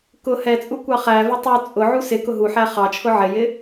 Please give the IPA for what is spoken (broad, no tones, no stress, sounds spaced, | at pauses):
k ʊ h ɛ t͡sʼ u kʷ ɑ χ æ v ɪ tˤ u t͡sʼ ʊ ʕ u s ɪ k ʊ ɦ u ħ æ χ ɑ t͡ʃʰ ʊ ʕ ɪ j ɪ